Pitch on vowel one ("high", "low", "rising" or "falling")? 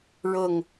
falling